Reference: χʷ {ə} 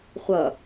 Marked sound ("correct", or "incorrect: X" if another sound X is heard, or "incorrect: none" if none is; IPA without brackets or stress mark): incorrect: ʌ